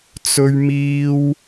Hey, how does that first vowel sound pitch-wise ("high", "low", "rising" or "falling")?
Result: high